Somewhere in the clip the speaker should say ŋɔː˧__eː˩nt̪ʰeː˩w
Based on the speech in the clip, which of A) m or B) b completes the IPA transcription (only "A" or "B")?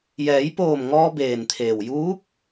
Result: B